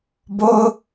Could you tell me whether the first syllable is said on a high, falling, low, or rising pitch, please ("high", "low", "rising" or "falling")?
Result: high